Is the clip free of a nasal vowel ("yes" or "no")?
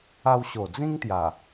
no